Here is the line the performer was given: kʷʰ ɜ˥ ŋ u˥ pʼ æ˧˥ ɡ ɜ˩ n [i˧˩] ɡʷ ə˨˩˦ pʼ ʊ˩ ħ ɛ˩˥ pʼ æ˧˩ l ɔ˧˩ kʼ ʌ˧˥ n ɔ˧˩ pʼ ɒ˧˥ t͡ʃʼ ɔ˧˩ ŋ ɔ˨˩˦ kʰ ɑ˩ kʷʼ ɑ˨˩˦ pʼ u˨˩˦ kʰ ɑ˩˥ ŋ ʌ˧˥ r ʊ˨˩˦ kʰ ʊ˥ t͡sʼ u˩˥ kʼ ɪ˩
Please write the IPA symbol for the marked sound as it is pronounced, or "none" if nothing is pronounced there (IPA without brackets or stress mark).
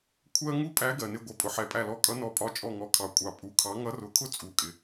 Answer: ɪ˧˩